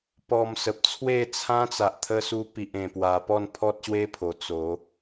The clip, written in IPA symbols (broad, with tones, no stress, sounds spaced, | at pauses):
p ɔ˨˩ m s ə˨ p̚ t͡sʰ w e˥˧ t͡sʰ ã˦ t͡s a˨ ʔ t̪ʰ ə˧ s u˧ p i˨ ʔ ẽ˨˩ p w a˨˩ p ɔ˥˧ n pʰ ɔ˦ t̚ ɕ w e˦ pʰ o˨˩ t͡s o˨˦